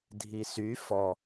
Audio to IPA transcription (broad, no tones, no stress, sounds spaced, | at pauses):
dʱ i s y f ɔ